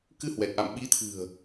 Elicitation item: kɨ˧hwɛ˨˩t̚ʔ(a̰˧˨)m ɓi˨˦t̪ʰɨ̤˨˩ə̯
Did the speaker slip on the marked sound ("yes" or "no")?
no